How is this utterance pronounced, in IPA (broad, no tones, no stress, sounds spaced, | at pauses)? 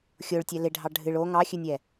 xʲ o ɭ tʲ ɛ l ɪ ɖʱ ɑ ɖʱ ɨ ɭ o ŋ ɑ xʲ ɨ nʲ ɛ